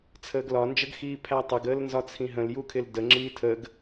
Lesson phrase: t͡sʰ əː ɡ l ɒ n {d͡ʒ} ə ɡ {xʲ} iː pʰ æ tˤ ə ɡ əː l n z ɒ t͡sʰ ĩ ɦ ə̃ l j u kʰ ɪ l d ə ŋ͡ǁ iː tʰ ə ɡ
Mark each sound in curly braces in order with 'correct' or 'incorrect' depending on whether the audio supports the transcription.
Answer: correct, incorrect: x

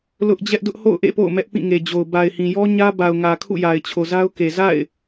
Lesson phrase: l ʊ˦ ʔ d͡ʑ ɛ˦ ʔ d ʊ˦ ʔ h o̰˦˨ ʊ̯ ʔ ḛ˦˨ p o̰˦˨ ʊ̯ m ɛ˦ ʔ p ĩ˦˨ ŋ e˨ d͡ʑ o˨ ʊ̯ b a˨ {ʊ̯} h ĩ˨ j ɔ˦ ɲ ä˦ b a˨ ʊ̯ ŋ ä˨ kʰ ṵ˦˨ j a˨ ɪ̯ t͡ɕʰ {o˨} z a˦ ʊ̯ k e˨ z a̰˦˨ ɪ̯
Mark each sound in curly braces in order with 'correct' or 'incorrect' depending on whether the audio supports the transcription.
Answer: incorrect: ɪ̯, correct

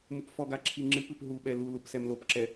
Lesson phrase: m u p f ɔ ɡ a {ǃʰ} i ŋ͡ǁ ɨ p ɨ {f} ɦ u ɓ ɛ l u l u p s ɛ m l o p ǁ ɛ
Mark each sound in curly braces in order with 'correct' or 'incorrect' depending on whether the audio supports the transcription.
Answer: incorrect: ǁʰ, incorrect: p

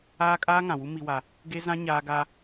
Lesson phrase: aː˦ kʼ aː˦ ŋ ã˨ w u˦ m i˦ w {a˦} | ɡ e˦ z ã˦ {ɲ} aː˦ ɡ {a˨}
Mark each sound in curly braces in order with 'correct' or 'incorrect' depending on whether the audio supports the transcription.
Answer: correct, correct, incorrect: a˦

